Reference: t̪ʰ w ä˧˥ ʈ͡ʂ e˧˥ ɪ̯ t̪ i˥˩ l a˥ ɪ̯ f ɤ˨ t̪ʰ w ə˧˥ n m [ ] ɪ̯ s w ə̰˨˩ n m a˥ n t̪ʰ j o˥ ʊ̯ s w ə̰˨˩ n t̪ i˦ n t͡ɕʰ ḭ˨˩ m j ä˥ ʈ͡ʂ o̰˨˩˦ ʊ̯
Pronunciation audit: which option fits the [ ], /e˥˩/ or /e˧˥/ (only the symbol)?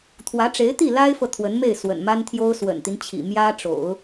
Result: e˥˩